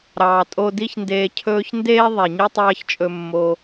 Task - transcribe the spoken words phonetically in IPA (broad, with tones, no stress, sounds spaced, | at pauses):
ɾ ɑː˨ tʼ o˧ d i˦ ç n d eː˧ cʰ ɵː˧ ç n d eː˦ ðˤ e˨ ɲ i˦ tˤ ɑː˦ ç t͡ʃʼ ɵ˧ mː o˧